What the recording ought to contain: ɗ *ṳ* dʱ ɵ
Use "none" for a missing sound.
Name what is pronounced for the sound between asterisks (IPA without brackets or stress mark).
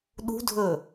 ṳ